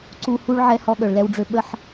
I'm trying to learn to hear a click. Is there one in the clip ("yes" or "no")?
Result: yes